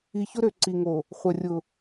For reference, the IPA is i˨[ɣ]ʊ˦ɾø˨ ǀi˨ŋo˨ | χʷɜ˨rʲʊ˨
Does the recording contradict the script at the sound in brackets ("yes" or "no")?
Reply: yes